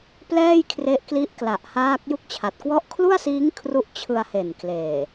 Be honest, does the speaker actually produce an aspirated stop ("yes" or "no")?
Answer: yes